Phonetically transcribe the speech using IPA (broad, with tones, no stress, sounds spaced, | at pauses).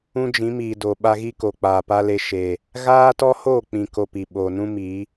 ũ˦ d͡ʒ ĩ˨˦ m iː˨ d o˨ ɓ a˧ ɣ i˦ k o˨ k͡p aː˨ p a˦ l e˧ ʃ e˨ | ɣ aː˦ t ɔ˦ h oː˦˨ k͡p ĩ˨ k o˧ p i˨ ɓ oː˨ n ũ˦ m i˨˦